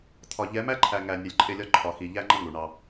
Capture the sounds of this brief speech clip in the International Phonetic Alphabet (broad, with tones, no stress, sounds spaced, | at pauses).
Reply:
t̪ʰ ɒ˨ ʎ ɛ˨˦ m æ˦ ǃʰ æ˨ ŋ æ˨ nʲ ə˨˦ lʲ ǃʼ ɪ˦˨ lʲ ɒ˦ ǃʰ ɒ˨ x i˨ ʎ æ˦ ŋ͡ǃ ə˦ ŋ u˨ ɳ ɑ˦